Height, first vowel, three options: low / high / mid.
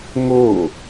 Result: mid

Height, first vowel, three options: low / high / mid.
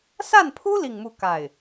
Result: low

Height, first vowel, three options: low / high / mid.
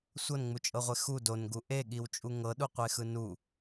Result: mid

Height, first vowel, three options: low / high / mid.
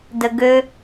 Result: mid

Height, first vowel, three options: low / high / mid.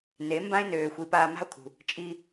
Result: mid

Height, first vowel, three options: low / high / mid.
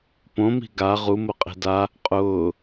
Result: mid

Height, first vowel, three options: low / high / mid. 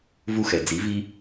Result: high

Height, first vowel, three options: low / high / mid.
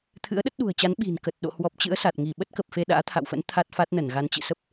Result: high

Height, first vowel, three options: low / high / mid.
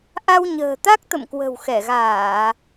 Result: low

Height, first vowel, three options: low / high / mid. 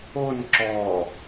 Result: mid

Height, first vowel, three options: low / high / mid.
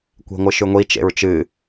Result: mid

